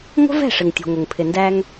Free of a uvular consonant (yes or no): yes